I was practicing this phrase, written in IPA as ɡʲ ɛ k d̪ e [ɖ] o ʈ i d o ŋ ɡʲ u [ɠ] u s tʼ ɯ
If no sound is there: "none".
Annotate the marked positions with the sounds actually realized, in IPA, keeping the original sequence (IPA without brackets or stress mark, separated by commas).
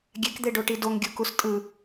ɖ, k